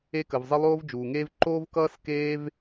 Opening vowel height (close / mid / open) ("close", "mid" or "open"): mid